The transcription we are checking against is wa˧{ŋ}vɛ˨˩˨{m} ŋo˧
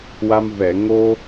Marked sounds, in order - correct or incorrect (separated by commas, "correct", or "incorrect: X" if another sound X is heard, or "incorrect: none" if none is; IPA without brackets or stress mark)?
incorrect: m, incorrect: none